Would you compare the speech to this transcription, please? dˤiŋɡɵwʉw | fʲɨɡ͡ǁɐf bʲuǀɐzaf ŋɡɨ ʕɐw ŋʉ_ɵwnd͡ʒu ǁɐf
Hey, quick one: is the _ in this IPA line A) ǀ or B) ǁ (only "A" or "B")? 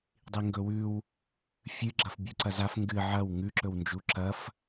B